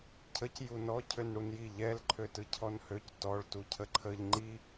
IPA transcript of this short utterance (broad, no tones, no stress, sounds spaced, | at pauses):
cʰ ə c j u n ɔ cʰ ø n ɽ u n j i ʎ ɛ l ǃʰ ø t ɯ cʰ ɔ n h ø c t ɔ ɭ t u cʰ ə ǃʰ ə ʎ ŋ͡ǃ i